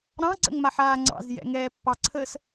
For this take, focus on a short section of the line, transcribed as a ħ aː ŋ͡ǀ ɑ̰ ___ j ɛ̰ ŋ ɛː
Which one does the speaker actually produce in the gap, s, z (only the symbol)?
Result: z